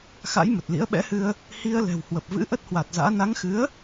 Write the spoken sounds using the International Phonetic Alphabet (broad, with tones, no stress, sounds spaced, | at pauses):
x a̰˧˥ j m ə˨˩ t̚ l ḭ˧˥ ə̯ ɓ ɛ̰˧˥ h ɨ˧ ə̯ | h i˧ ə̯ l ɛ̤˨˩ w h w ə˨˩ p̚ v ɨ̰˧˥ ʔ ə˦˥ t̚ h w a˨˩ t̚ z a̰ː˧˥ n a˨˦ ŋ x ɨ˨˦ ə̯